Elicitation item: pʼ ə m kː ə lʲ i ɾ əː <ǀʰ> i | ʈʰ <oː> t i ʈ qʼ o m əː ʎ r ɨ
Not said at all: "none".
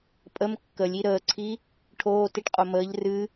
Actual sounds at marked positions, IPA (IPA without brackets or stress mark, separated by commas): ǀʰ, oː